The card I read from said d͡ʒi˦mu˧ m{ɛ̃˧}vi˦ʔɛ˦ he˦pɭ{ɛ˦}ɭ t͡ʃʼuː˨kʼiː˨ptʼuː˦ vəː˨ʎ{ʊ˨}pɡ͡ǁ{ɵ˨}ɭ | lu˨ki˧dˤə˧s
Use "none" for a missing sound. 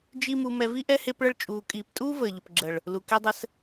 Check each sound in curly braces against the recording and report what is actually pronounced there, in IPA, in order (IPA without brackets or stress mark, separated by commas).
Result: ɛ˧, ə˦, ʊ˨, ə˨